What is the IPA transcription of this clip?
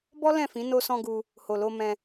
b ɔ˦ l ɛ̃˦˨ f ĩ˨˦ n o˧ s ɔ̃˧ ɡ u˧ | h o˨ l o˧ m ɛ̃˧

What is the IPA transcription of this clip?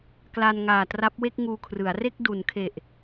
k l a˧ n ŋ aː˨˩ t r a˦˥ p̚ w e˥˩ k̚ ŋ uː˧ kʰ r ɯ˩˦ a̯ r e˥˩ k̚ d u˩˦ n kʰ e˨˩ ʔ

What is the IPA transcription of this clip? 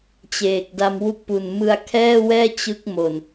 t͡ɕ eː˨˩ k̚ d a˧ m w u˦˥ k̚ p u˨˩ n m ɯ˧ a̯ kʰ ɛː˥˩ w ɛː˥˩ t͡ɕ ɯ˦˥ k̚ m o˨˩ n

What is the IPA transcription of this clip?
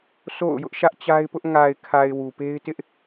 s o̰˦˨ ʊ̯ j ʊ˦ ʔ ʃ ä˦ ʔ t͡ɕ a˦ ɪ̯ p ʊ˦ ʔ ŋ a˨ ɪ̯ kʰ a˨ ɪ̯ w u˨ p e˦ ɪ̯ t ɪ˦ ʔ

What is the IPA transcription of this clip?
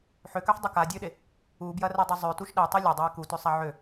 ħ ø k ø ħ dˤ e k a dʲ ø ɗ e | u b j ɐ r ɛ dˤ ø zˤ ø t u ʃ ɗ ɛ tˤ i lʲ a dˤ a i̯ k u t ø sˤ a ʕ ø

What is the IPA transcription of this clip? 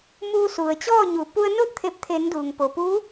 m uː˧ s u˩ ə̯ t͡ɕ ɔː˥˨ ɲ u˩˧ p u˧ ə̯ n o˥˨ t̚ t̪ʰ e˧˩ p̚ t̪ʰ e˩˧ n d uː˩ ŋ p o˩ p uː˧˥

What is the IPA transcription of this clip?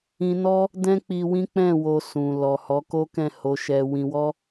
ĩ˧ n ɔ˦ | d ɛ̃˦ k͡p i˧ w ĩ˦ k͡p ɛ̃˦˨ w o˧ s ũ˨ l ɔ˨ h ɔ˨˦ k o˦ k ɛ̃˦˨ h o˧ ʃ ɛ˧ w ĩ˧ w ɔ˦

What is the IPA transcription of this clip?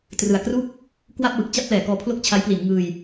t r ɯ˨˩ a̯ k r u˥˩ k̚ | k w a˥˩ p̚ w ɯ˨˩ k̚ t͡ɕ a˥˩ p̚ l ɛː˩˦ k ɔː˧ pʰ l o˥˩ k̚ t͡ɕʰ a˦˥ j p l i˩˦ n ŋ ɯː˧ j

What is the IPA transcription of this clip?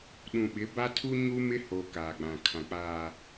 ɗ ũ˨ ɓ ɪ˨˦ b a˦ tʰ u˦ ɲ u˦ m ɪ˦ h o˨ k aː˨ ɡ͡b ã˨ kʰ ã˨ k͡p aː˨

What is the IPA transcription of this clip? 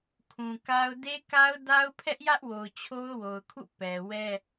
kʰ ũ˨ k a˦ ʊ̯ d e˦ k a˦ ʊ̯ d a˦ ʊ̯ pʰ ɛ˦ ʔ j ä˦ ʔ w o˨ ʊ̯ t͡ɕʰ o˦ ʊ̯ w o˨ ʊ̯ kʰ ṵ˦˨ p ɛ˨ w ɛ˦

